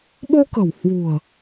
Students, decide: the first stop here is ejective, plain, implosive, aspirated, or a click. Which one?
implosive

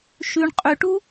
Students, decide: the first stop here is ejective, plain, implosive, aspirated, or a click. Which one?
ejective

